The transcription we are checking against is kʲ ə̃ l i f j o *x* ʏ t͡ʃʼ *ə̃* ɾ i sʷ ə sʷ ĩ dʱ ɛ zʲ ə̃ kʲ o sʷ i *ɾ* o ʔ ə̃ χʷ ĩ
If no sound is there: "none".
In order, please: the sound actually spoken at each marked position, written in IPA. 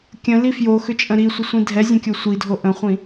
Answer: x, ə̃, dʱ

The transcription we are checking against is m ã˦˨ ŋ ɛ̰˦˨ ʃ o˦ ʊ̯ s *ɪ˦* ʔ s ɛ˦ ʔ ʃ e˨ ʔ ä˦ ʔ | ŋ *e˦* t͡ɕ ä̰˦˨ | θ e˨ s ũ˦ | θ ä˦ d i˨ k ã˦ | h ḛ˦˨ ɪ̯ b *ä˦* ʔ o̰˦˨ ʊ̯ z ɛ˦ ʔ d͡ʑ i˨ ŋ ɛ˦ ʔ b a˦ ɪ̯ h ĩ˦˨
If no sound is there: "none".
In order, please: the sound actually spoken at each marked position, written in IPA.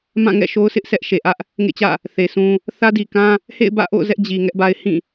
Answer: ɪ˦, ḛ˦˨, ä̰˦˨

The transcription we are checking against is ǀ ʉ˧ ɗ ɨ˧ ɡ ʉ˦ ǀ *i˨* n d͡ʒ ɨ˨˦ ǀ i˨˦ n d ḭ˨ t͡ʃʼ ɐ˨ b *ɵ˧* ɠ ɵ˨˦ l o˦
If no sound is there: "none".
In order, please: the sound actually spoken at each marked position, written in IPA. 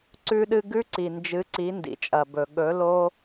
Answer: i˨, ɵ˨

